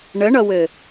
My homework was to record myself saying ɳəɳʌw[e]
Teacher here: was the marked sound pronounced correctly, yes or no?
no